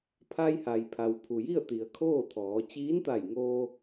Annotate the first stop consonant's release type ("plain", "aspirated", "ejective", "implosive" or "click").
aspirated